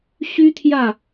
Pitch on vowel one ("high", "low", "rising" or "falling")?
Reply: high